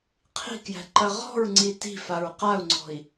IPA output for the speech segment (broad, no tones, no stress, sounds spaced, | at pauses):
qʰ i̤ k j æ̤ ǃ ɐ ʁ ɔ̤ ɹ ŋ͡ǀ i t i̤ f a ɹ q a u̯ ŋ͡ǀ ɔ̤ i̯